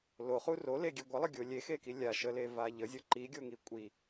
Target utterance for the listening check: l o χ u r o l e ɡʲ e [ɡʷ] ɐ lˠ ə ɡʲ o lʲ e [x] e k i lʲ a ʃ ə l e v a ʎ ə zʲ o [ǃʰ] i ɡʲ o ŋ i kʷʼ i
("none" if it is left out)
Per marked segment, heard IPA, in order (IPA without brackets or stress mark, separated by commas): ɡʷ, x, ǃ